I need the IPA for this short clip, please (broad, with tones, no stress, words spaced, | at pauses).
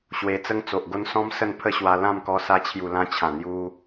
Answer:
ɕwe˧t͡sə˦ŋt͡so˨ʔɡo˦n sɔ̃˦m sə˥˧npʰə˥˧ɕwa˧ lã˥˧mkɔ˧sa˧ t͡ɕʰju˨˩lã˧ t͡ɕʰã˨˩n̪ju˧